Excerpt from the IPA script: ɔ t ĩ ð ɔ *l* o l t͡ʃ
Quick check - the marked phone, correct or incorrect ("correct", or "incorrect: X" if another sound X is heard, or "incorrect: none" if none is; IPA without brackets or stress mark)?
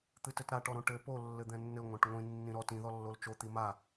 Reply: incorrect: lː